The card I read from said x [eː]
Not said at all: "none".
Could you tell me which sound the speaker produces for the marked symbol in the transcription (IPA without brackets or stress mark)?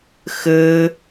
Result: ɘː